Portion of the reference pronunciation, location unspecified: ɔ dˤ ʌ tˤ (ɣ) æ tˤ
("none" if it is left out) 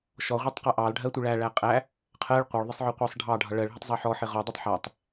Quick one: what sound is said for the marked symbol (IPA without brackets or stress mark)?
ħ